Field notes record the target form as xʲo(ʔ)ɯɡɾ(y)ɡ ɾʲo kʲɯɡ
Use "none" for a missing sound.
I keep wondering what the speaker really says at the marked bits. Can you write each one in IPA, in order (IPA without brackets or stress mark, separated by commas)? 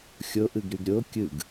ʔ, y